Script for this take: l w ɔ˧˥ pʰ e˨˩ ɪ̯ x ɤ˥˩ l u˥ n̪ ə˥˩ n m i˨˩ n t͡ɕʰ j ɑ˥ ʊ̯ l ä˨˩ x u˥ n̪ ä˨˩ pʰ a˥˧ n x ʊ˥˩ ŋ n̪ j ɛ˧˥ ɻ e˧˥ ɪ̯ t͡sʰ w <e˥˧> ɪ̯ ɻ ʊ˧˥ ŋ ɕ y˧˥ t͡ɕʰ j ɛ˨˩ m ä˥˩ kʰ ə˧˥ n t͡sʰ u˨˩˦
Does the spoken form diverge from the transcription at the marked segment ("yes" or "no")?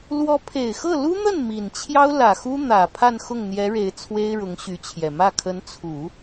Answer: yes